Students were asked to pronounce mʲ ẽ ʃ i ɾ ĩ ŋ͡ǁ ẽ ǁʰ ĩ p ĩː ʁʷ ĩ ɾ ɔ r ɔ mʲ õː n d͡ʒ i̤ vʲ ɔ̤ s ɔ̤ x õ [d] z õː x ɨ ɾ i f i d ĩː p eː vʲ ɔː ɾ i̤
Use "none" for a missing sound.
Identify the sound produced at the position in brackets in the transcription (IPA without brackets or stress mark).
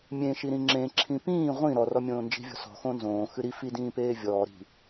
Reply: n